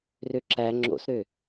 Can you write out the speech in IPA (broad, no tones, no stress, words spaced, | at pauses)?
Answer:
røǁæ ŋ͡ǁo̰sɾø